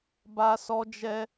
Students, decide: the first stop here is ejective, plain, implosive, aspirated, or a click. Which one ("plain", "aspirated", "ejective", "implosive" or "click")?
plain